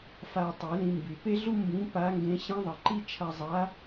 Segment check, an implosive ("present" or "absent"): absent